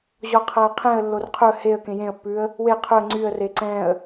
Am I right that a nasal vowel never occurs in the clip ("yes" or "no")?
no